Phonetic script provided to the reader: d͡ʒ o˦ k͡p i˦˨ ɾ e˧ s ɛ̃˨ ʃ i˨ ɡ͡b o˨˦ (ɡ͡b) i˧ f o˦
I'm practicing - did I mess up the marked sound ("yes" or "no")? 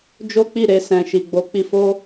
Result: yes